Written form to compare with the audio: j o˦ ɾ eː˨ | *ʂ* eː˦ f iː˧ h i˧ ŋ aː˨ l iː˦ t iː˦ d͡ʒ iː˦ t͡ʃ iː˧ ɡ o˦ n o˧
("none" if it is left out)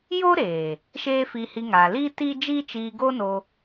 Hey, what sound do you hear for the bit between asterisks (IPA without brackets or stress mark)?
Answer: ʃ